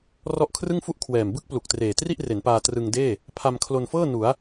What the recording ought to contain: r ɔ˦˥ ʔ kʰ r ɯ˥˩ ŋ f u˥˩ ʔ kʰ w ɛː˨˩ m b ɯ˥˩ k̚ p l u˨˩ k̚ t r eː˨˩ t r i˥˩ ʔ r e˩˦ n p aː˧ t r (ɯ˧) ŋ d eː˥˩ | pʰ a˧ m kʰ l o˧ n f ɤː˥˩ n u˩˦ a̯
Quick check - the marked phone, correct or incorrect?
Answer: correct